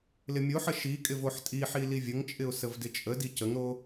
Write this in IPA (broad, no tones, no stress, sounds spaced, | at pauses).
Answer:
l ɪ mʲ o ħ ə ʃ i kʼ ɪ v o ħ tʼ i ħ i l i vʲ ə ŋ t͡ʃʼ ɪ ʊ̯ s ə v d ɪ t͡ʃʼ ə d i c ə ŋ ɾ o